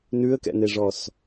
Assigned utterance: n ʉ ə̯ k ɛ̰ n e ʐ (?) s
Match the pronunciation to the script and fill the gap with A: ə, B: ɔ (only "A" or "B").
B